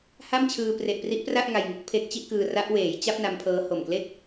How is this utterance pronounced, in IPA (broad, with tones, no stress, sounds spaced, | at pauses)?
h a˥˩ m t͡ɕʰ ɯː˧ p r e˨˩ ʔ p r i˦˥ ʔ p r a˥˩ ʔ ŋ a˧ j ŋ u˦˥ k̚ pʰ e˦˥ k̚ t͡ɕ i˥˩ ʔ k ɯː˧ r a˦˥ ʔ w eː˩˦ j t͡ɕ a˥˩ p̚ n a˦˥ m pʰ ɤː˦˥ h o˨˩ m k l e˥˩ k̚